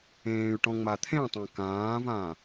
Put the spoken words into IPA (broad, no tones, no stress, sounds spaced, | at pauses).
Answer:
ẽː y̯ ʈ ɔ̃ ŋ͡m a t̪ʰ ẽ tˤ ã k ãː v ã